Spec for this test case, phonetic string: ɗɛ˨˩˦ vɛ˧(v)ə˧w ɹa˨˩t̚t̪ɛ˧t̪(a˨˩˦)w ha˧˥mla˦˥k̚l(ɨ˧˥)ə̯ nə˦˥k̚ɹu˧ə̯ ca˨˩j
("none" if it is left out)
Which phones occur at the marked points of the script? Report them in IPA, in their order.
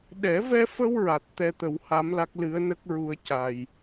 f, ə˨˩˦, ɨ˧˥

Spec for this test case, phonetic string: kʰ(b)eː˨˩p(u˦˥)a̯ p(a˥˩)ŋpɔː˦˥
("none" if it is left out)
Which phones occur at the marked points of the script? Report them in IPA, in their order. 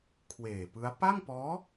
w, ɯ˦˥, a˥˩

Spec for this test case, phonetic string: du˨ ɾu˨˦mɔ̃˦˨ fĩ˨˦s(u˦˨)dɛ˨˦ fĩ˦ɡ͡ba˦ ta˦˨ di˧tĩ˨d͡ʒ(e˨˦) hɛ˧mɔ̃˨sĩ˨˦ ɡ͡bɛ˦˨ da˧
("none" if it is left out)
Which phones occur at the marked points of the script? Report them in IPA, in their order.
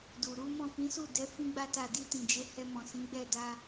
u˦˨, e˨˦

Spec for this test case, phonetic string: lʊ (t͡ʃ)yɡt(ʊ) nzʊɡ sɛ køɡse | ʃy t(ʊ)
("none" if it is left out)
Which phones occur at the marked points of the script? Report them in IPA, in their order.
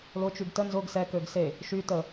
t͡ʃ, ə, ə

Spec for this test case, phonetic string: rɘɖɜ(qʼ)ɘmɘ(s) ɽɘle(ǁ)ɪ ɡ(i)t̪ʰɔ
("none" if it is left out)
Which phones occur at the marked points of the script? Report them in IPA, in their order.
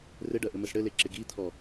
ʔ, s, ǁ, i

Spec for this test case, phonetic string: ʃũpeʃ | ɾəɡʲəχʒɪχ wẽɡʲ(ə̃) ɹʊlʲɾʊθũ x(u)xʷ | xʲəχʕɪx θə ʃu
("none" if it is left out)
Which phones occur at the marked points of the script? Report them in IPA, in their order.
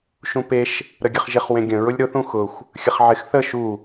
ə̃, ʊ

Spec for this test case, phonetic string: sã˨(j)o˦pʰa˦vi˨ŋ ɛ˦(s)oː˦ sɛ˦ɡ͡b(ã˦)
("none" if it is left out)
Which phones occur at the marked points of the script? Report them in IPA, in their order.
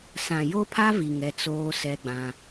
j, t͡s, ã˦

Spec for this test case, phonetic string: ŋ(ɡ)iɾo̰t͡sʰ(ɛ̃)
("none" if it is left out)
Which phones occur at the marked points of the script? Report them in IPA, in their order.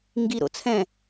ɡ, ɛ̃

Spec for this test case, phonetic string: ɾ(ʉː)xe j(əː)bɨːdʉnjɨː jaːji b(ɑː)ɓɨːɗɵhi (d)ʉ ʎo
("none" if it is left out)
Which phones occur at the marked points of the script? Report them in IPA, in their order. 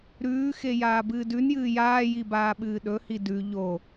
ʉː, aː, aː, d

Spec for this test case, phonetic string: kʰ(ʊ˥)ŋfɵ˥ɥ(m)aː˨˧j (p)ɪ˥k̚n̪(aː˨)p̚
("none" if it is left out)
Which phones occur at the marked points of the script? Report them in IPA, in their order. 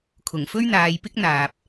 ʊ˨˩, n̪, p, aː˨

